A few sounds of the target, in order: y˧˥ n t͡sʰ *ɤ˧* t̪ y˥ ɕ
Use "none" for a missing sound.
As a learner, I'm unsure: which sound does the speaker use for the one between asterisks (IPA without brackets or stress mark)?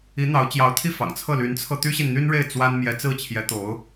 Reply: ɤ˧